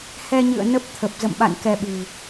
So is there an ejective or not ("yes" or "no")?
no